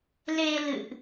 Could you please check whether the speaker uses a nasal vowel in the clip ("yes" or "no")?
no